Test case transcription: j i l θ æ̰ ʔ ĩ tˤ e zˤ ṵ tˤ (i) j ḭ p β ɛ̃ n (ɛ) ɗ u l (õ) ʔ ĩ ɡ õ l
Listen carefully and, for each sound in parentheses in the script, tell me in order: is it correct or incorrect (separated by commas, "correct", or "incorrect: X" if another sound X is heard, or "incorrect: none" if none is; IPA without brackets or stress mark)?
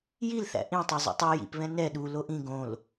incorrect: y, correct, incorrect: o